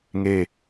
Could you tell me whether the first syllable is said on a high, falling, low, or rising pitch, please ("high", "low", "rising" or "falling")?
falling